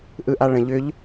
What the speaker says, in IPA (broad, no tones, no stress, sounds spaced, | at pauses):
ʔ ɯ ʔ a ɭ ə̃ ʎ ʏ ʎ